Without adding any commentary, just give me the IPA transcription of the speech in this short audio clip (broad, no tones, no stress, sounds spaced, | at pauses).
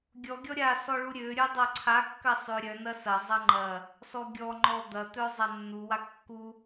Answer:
ɡʲ ɔ ɡʲ ɔ ɾʲ a s ɔ ɭ u ɾʲ ø ɾʲ œ dˤ a ǀʰ a kː ɐ sˤ ø ɾʲ œ n ɐ s ɐ zˤ ɐ ŋ͡ǃ ɐ | s ɔ ɡʲ ɔ ŋ͡ǃ ɔ d̪ ɐ t̪ œ zˤ a nː u w a kː u